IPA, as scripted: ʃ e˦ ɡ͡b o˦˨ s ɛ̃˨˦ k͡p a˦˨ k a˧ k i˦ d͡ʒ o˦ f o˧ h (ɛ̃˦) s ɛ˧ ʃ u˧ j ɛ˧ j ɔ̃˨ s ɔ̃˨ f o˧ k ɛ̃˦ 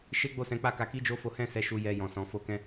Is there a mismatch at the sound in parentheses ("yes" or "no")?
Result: no